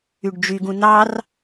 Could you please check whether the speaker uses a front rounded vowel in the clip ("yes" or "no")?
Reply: yes